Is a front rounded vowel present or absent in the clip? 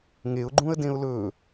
absent